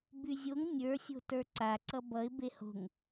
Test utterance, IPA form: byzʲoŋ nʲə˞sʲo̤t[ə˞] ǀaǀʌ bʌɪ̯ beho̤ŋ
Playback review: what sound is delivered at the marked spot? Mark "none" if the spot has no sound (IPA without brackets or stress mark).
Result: ə˞